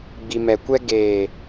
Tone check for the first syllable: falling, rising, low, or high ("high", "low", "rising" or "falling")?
low